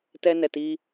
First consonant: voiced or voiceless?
voiceless